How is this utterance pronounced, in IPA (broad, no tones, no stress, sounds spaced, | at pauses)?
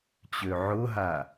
t͡ɕ ø ʕ ʊ ɦ a